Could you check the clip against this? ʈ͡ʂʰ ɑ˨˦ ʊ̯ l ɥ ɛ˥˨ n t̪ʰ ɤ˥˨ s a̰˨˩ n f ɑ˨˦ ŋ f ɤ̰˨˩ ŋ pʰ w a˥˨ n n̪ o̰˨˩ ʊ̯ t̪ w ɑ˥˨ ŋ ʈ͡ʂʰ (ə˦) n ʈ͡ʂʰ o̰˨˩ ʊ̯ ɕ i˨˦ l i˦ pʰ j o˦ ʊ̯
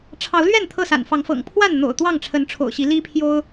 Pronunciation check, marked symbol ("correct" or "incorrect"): incorrect